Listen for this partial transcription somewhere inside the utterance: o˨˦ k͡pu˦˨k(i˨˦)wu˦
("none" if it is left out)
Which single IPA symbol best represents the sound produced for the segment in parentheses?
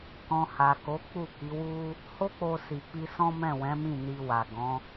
i˨˦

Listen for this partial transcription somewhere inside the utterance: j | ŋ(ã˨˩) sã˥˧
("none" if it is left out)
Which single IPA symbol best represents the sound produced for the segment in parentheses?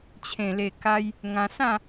ã˧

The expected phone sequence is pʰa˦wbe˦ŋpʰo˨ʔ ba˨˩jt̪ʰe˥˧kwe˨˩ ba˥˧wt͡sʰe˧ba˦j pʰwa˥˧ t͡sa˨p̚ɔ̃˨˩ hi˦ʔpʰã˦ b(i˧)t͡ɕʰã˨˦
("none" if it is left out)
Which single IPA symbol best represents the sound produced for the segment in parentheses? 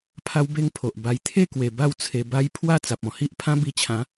i˧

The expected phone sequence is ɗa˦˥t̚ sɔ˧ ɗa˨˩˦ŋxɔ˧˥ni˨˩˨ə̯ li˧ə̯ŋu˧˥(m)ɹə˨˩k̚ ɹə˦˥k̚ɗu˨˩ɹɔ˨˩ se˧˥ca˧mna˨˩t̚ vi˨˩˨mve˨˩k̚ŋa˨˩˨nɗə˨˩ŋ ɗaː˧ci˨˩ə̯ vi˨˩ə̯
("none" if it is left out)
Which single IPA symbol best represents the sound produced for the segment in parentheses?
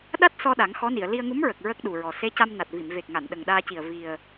m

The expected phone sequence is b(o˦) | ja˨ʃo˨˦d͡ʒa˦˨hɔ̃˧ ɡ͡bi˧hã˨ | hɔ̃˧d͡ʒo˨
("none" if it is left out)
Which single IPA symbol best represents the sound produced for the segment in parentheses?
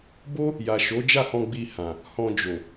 o˦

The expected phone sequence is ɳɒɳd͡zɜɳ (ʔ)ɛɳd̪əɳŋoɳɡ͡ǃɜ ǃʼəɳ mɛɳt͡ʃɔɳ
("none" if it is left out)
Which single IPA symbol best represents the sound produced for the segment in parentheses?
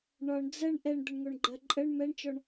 ʔ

